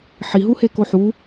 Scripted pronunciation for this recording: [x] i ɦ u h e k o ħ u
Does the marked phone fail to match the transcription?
yes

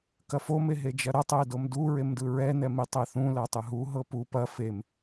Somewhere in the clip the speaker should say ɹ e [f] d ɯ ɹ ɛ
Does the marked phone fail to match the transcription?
yes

